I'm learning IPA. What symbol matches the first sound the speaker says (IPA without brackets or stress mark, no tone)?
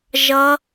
ʒ